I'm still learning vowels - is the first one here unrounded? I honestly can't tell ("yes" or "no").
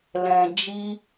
yes